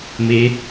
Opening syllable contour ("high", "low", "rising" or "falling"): rising